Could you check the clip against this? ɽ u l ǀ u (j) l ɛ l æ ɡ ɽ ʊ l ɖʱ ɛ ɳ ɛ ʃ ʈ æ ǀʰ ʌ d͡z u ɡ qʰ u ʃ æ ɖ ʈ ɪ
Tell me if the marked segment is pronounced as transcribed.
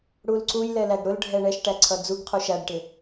yes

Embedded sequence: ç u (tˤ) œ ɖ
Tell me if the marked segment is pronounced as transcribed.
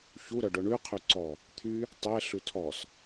no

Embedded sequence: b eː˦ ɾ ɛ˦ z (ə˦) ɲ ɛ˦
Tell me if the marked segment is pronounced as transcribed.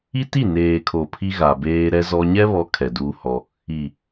no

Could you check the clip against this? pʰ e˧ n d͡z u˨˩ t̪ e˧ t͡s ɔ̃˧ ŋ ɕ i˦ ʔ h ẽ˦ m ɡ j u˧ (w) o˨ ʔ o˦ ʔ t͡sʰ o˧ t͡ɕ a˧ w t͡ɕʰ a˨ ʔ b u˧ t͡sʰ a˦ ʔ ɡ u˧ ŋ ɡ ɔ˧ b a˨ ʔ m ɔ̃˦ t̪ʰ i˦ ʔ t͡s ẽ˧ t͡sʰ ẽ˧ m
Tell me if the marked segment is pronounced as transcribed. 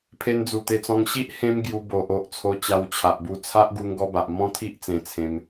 no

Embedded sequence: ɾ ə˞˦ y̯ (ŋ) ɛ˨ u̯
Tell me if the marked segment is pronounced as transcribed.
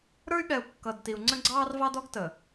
no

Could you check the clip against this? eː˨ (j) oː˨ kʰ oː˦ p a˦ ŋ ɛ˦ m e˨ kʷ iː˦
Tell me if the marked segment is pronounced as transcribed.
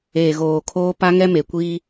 no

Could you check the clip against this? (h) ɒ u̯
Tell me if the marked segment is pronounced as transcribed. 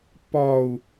no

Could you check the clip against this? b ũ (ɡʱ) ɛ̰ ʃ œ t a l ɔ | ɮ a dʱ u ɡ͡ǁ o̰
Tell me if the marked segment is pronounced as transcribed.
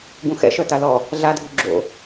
no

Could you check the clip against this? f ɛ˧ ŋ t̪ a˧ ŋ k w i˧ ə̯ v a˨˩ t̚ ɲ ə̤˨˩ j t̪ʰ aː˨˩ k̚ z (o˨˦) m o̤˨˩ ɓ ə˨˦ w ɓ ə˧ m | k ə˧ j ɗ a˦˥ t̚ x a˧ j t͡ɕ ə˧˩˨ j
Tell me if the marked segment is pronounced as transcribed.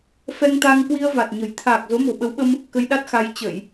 yes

